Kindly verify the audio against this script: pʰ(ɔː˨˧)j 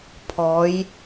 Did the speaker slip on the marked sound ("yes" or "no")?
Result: no